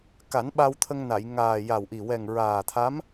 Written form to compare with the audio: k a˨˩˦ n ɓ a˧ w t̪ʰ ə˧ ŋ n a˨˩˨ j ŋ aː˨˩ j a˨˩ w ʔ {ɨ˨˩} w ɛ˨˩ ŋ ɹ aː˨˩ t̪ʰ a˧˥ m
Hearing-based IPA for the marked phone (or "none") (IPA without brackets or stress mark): i˨˩